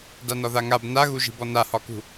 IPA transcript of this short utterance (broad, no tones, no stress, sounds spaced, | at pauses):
d a n ɒ ð a ŋ a b n a ɣ u ʒ i̤ b ɔ n a h ɒ k ṳ